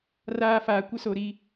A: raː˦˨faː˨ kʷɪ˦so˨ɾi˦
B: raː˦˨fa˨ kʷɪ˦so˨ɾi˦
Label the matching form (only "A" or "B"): A